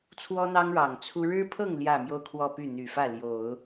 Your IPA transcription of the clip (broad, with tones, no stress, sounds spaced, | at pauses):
t͡sʰ w ɔ˥ n̪ ɑ˥ ŋ ɻ ɑ˨˩ ŋ t͡sʰ u˥ ɻ ɻ̩˥ pʰ ɤ˥˧ ŋ l j ä˥˧ m j o˥˧ ʊ̯ kʰ w ɔ˥˧ p y˥˩ n̪ y˨˩ f ä˥˩ l j o˨˩˦ ʊ̯